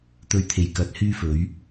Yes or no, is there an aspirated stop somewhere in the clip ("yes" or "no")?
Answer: yes